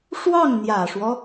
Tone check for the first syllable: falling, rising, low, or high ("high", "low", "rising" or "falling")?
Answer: falling